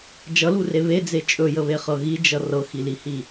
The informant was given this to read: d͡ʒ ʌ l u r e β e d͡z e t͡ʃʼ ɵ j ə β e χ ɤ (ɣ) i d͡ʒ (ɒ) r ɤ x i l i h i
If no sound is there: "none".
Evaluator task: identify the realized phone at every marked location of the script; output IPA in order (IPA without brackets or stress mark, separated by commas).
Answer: ɣ, ʌ